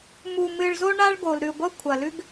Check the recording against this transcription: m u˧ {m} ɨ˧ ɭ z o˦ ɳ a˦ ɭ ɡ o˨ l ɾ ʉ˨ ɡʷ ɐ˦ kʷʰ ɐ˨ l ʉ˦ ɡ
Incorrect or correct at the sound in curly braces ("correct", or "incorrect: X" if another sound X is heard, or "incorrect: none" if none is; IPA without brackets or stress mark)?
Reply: correct